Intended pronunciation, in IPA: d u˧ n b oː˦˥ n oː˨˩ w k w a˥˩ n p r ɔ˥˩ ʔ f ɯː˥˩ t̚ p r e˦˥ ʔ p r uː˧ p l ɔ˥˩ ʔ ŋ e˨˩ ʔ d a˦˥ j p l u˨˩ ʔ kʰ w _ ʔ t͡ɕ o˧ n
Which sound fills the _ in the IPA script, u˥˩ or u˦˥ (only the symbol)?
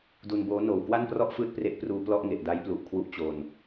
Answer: u˦˥